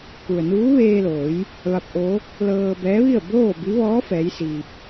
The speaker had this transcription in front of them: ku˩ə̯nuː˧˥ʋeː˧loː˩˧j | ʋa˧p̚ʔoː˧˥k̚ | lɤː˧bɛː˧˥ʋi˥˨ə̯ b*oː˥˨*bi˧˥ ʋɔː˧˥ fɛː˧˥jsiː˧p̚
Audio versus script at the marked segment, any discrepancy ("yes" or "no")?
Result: no